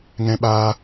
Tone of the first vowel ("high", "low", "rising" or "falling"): high